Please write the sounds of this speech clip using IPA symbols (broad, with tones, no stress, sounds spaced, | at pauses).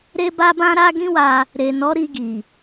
ɾ e˦ b a˦ b ã˦ ɾ a˦ ɡ ĩ˦ w a˧ | ɾ e˨ n ɔ˨˦ ɾ i˧ ɡ i˨